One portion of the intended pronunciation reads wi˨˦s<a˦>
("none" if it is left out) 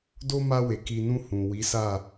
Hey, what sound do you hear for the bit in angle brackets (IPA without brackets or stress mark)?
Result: a˦˨